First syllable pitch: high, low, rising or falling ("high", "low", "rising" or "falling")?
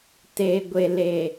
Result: low